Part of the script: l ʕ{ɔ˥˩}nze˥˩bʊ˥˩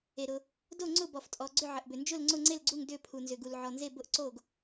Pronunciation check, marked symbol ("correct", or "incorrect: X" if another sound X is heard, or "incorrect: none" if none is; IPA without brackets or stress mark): incorrect: ɔ˩